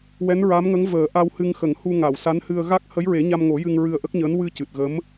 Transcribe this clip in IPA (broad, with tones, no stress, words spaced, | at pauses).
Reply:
wɛ˧˥nɹa˧˥mŋə˧˥ŋ vəː˨˩˦ʔa˧whɨ˧ŋ xə˨˩˦ŋhu˧ ŋa˨˩˨wsa˧˥nhɨ˧ə̯ ɣa˦˥k̚ hə˧˥jɹe˨˩˦ɲa˧mŋo˨˩˦ jɨ˧ŋɹɨ˧ə̯ʔə˦˥k̚ɲəː˧˥n wɨ˧ cɨ˨˩t̚ɣə˧˥m